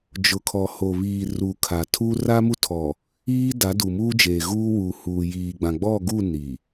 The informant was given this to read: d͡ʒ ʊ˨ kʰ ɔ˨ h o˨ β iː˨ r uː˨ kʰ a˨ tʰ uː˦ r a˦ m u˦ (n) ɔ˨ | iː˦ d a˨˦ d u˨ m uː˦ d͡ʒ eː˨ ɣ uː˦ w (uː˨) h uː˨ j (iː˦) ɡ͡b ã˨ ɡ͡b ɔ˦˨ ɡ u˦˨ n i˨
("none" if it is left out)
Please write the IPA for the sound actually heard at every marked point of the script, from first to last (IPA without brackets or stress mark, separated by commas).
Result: tʰ, uː˨, iː˨